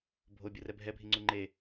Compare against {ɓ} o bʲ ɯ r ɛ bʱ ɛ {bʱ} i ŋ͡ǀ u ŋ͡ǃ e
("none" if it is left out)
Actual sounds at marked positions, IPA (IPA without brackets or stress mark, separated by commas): bʱ, bʱ